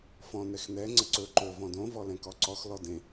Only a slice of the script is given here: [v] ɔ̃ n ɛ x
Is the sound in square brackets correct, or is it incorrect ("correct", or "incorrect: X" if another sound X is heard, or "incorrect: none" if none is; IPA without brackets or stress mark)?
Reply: incorrect: f